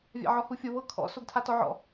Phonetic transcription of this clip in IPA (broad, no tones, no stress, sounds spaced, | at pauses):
vʲ a̰ ʕ ɔ h u fʲ o β ɤ kʰ ɔ̰ s o ɡ tʰ a t ɔ ʕ ɔ̰